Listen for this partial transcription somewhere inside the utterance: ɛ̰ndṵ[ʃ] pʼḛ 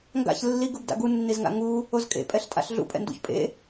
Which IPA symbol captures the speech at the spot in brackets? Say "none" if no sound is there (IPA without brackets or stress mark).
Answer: ç